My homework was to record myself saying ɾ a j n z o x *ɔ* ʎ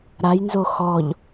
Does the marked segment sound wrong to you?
no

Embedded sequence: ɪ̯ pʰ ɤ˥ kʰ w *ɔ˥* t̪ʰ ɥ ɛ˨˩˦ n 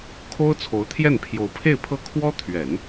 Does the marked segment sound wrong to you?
no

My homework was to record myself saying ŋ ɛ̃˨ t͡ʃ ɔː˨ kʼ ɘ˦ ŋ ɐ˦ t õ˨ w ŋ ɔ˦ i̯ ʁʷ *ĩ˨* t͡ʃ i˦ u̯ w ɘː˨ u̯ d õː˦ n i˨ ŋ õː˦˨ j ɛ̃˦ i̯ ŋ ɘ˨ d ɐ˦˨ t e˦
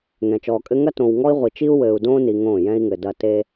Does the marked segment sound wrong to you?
yes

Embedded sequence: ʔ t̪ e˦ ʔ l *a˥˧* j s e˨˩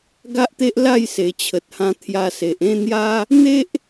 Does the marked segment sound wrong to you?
no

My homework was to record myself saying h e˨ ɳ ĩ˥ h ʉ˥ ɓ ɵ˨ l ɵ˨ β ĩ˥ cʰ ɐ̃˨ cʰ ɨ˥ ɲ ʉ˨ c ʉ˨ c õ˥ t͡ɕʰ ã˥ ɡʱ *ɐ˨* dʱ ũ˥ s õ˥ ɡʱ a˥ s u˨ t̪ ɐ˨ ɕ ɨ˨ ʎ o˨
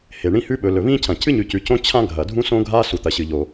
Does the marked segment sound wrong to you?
no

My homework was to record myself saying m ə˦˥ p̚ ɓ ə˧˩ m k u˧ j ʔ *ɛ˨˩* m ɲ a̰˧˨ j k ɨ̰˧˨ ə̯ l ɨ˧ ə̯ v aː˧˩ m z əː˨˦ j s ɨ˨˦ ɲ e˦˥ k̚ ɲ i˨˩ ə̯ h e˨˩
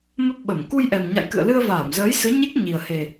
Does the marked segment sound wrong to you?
no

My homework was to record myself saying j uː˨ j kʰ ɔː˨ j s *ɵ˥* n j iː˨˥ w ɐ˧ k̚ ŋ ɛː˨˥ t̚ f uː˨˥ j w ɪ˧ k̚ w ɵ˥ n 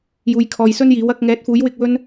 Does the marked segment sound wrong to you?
no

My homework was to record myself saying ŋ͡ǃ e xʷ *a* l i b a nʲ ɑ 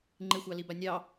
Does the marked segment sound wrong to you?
yes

